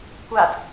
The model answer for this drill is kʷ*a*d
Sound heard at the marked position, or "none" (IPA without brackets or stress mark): a